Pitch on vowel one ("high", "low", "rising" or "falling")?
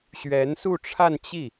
rising